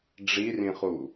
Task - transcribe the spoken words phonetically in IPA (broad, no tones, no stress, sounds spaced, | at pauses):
ɖ͡ʐ i r ĩ χ u